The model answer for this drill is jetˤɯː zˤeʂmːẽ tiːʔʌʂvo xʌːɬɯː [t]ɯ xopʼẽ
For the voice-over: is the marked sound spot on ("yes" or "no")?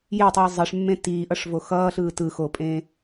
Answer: yes